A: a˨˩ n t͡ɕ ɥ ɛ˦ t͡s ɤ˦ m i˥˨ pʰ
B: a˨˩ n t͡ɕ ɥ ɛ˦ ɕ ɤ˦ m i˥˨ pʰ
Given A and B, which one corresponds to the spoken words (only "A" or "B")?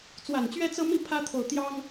A